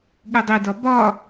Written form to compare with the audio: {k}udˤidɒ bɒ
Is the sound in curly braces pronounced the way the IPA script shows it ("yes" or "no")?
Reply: no